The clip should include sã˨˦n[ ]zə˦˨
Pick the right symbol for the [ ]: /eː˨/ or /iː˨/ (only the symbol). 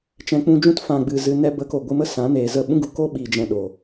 eː˨